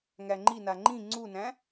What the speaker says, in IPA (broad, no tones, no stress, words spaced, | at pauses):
ŋæŋ͡ǃina ŋ͡ǃĩ ŋ͡ǀunæ̃